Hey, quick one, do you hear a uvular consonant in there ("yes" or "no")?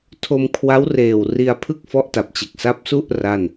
no